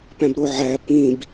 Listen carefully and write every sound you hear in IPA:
pæ̃bɾoʕæ pĩb

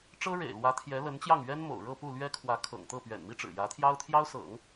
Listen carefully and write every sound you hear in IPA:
ʈ͡ʂɤ˥ɻḛ˨˩ɪ̯lwä˧˥ t̪ʰjɛ˧˥lə˧˥nt͡ɕjɑ˥˩ŋ ɥɛ˥nmo̰˨˩ʊ̯ɻɤ˥˧ pu˥˩lɥɛ˥kʰwä˧˥kʰɤ̰˨˩ŋ t̪ɤ˥˩ pɥɛ̰˨˩nmi˥ʈ͡ʂɻ̩˨˩ jä˧˥t̪ʰjɑ˥ʊ̯t̪ʰjɑ˥ʊ̯sɤ̰˨˩˦ŋ

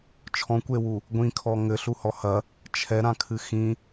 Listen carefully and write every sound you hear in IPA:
t͡ʃʰɔ̃kʷewu | ɡʷĩkʰɔ ŋɘɬuhɔ hɐ | t͡ʃʰɛɾãkʰɨ xĩ

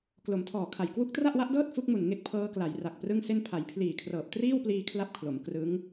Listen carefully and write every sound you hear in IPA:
klo˩˦mtʰɔː˨˩kʰa˨˩j kwu˦˥k̚tra˥˩ʔwa˦˥ʔdɤː˥˩t̚ fu˦˥k̚mu˨˩n ŋe˥˩k̚pʰɤː˦˥kla˩˦j ra˨˩k̚prɯ˥˩ŋse˥˩n pʰa˩˦jpʰliː˨˩kʰrɤː˨˩p̚ triː˥˩wpliː˧ kʰla˥˩p̚kʰlo˩˦m krɯ˦˥ŋ

